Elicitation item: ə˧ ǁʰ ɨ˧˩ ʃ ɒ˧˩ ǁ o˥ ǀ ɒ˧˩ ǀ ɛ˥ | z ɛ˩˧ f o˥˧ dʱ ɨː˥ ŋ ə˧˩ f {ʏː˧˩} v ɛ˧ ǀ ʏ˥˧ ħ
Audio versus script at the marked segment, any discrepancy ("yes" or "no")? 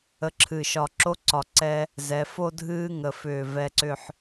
no